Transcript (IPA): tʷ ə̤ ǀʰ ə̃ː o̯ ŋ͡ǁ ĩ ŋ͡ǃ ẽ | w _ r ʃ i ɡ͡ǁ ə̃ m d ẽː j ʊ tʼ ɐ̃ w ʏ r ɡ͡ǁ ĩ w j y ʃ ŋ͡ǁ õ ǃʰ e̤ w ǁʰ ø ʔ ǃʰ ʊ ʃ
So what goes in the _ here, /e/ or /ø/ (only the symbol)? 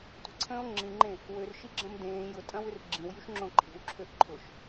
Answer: ø